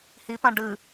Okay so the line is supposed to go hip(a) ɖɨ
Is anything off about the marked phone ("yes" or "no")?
yes